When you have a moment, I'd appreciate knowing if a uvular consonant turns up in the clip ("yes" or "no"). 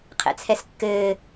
yes